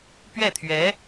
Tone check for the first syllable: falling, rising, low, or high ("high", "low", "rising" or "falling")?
falling